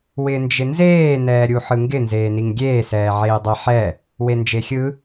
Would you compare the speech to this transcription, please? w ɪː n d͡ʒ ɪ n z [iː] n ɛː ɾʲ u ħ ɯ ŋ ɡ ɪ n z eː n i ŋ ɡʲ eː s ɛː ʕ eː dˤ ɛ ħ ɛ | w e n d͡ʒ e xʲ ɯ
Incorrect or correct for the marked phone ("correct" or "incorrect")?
incorrect